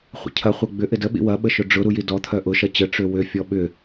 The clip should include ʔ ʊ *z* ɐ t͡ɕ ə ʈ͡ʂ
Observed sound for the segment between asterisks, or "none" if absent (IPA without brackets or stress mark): ʃ